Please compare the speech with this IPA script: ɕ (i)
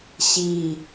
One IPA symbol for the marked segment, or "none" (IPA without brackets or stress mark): i